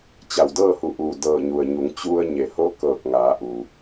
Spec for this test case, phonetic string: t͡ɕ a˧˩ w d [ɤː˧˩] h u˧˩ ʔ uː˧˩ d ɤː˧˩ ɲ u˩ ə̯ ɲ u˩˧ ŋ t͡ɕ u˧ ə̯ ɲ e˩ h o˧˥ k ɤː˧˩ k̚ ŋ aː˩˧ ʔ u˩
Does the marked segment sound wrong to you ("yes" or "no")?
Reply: yes